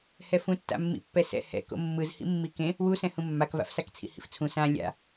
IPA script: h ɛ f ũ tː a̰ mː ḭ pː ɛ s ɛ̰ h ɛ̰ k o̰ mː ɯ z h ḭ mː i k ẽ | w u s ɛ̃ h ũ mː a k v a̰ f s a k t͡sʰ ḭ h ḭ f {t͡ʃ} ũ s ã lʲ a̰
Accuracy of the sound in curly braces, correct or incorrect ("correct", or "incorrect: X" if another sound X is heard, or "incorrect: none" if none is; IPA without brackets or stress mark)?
incorrect: t͡sʰ